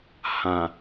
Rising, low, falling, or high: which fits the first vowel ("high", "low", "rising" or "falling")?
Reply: low